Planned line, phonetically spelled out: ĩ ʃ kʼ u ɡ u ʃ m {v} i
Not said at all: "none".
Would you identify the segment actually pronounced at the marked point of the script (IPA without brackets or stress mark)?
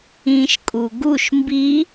b